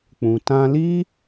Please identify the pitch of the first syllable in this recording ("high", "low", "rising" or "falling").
low